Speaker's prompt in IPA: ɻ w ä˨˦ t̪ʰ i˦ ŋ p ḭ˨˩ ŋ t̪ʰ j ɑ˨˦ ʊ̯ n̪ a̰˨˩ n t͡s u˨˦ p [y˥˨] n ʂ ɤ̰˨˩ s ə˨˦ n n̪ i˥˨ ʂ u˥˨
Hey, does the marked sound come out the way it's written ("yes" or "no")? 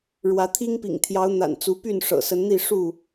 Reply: yes